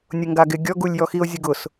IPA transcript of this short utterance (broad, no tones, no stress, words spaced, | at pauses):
nʲʊŋɡaɡɪ ɡʲɔ ɡulʲjɔxio̯ zʲʊɡʊs